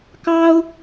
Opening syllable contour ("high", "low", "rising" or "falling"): high